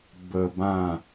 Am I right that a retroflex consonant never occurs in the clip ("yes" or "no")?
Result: yes